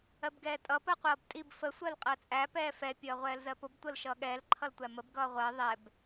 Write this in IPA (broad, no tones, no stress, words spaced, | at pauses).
ɜbɡɛːtʼʌ pɜqʷʌːbtʼib fə sʷɜlqʼɜt͡sʼæ pɛːfɛ pʲʌːʁʷɛːlzɜpʊb tʷəːlʃʌːɠɛːl ǃʰʌltʷæməb ɡʌːʁʷɜ ðˤɛb